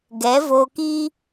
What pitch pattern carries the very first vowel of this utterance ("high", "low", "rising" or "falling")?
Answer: rising